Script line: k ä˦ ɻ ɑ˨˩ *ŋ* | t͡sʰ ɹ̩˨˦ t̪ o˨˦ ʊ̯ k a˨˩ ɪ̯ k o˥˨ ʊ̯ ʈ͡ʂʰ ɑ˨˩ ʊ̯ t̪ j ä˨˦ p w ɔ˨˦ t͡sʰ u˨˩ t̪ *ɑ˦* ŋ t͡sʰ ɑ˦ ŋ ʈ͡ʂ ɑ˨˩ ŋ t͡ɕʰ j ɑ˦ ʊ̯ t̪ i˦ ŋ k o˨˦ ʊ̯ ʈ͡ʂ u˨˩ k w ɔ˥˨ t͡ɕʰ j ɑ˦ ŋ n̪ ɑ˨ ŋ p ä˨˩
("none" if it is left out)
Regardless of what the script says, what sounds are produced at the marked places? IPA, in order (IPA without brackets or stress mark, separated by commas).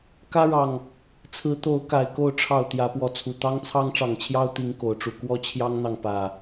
ŋ, ɑ˦